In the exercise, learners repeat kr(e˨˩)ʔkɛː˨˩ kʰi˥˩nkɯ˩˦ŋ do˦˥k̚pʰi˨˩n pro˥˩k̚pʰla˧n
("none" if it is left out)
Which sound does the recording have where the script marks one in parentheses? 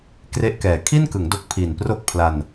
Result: e˥˩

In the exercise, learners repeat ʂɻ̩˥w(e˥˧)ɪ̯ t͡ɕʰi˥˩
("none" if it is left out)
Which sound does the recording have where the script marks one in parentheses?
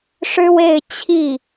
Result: e˥˧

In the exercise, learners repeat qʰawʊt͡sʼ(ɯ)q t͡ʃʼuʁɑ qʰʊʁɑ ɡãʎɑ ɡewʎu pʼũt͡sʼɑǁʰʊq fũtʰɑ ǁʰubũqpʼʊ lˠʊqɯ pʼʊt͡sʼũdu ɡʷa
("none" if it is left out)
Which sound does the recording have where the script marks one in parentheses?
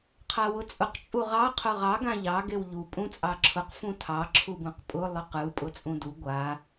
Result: ʊ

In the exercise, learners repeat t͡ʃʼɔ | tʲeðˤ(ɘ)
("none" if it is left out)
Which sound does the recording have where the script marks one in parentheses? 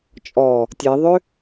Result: ø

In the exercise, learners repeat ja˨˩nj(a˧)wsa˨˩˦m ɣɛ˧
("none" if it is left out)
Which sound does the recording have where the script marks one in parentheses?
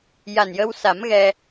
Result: ə˧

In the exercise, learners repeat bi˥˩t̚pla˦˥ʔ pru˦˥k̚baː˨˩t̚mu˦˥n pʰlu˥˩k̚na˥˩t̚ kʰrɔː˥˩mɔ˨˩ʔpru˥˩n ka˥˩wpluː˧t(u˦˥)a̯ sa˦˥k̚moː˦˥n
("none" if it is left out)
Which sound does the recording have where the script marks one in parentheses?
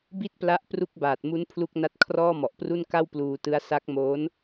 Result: ɯ˦˥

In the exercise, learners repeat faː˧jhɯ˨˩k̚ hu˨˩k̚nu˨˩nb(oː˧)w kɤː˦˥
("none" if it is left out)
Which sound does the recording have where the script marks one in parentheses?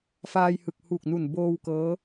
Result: oː˧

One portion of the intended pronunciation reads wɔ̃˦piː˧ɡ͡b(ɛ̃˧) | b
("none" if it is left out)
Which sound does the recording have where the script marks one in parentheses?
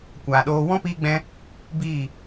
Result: ɛ̃˧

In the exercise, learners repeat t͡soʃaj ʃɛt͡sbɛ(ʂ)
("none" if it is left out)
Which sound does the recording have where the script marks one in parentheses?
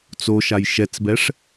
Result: ʂ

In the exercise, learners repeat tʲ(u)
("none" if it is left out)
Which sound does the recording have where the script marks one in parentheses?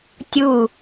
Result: u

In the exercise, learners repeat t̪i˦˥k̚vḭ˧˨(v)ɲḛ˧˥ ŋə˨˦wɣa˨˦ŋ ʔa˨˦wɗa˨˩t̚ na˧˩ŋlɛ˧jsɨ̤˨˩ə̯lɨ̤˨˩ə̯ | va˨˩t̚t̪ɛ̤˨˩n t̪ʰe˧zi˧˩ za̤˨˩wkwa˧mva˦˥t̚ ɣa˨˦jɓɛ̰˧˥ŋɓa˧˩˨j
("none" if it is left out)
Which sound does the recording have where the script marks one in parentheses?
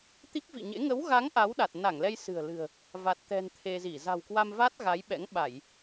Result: none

